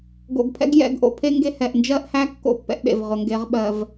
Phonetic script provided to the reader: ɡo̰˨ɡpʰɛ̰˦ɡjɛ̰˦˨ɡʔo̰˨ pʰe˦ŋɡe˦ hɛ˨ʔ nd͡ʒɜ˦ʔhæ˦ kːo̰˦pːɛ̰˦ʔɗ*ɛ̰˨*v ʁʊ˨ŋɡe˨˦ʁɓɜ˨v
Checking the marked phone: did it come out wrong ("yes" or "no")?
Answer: yes